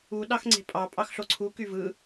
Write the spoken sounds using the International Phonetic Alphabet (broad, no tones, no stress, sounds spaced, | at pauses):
u ɗ ɑ x ŋ͡ǀ e̤ pʼ ɑ pʼ ɑ x ɬ o ǀʰ u k y v ɯ